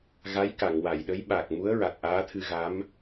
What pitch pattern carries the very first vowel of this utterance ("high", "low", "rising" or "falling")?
rising